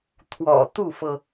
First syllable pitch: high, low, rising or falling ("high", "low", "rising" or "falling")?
low